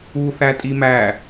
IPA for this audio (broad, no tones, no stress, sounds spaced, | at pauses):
u θ æ tʼ i m æ